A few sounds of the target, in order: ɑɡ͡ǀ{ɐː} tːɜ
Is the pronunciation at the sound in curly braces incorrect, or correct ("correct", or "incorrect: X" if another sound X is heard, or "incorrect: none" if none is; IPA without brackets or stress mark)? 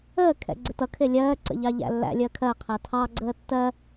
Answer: incorrect: əː